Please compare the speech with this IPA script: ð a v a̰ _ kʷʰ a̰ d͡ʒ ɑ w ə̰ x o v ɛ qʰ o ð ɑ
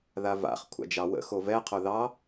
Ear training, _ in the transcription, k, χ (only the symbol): χ